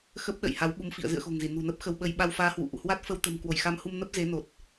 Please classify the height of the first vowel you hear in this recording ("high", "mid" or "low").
mid